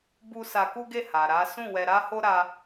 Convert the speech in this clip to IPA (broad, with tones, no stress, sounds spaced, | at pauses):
b u˦ s a˧ k u˦ ɡ e˦˨ h a˨ ɾ a˨˦ s ũ˦˨ w ɛ˧ ɾ a˦ h o˦ ɾ a˦